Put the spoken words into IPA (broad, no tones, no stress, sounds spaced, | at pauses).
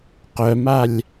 q œ m a lʲ